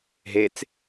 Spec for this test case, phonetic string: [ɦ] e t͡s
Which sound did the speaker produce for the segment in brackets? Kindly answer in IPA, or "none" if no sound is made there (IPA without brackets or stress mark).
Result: ɦ